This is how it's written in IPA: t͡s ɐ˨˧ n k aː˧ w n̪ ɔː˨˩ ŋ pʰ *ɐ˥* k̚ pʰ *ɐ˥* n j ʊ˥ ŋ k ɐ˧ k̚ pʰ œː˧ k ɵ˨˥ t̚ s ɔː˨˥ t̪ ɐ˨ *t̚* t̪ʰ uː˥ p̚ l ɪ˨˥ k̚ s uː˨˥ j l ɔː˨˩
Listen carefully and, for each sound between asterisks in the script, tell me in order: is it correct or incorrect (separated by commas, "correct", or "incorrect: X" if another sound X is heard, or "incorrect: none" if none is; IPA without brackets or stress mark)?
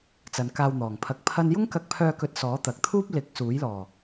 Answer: incorrect: ɐ˧, correct, incorrect: k̚